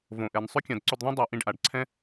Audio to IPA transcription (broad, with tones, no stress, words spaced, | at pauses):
võ˨ʔɛ˨n sˤʏ˦kʲã˨dǀʏ˧dðˤĩ˦ dˤa˧ʔĩ˧ɖʔa˨ɖǀʰɛ̃˦